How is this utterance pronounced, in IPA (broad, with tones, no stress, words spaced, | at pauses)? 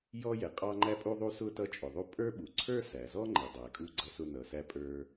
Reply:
jɔ˥jɛ˩ qʼɑ˥ ŋ͡ǃæ˥pʼu˥ðˤu˥sʊ˥ tʌ˥t͡ʃʼʊ˩ðˤu˥ pʼə˞˥ɓu˩ ǀʰə˞˥sæ˩zɔ˥ ŋ͡ǃɛ˩dˤæ˩kʼu˥ ɡ͡ǀʌ˥sʊ˥ nʌ˩sæ˥pʼə˞˥